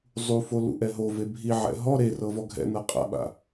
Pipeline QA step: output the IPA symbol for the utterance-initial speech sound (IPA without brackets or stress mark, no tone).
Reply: zˤ